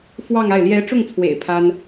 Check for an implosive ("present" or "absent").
absent